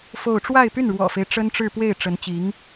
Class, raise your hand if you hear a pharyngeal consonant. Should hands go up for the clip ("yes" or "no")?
no